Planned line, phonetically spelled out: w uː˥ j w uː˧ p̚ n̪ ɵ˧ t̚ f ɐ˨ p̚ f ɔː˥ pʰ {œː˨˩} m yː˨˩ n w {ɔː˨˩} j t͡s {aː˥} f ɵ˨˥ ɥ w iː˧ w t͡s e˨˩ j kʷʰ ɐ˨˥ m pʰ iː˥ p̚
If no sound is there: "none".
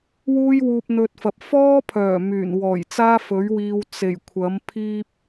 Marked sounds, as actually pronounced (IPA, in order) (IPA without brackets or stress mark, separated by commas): œː˨˩, ɔː˨˩, aː˥